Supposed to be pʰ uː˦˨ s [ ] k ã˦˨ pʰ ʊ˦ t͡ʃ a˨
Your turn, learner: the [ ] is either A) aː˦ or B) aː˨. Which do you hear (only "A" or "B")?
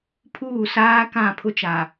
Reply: A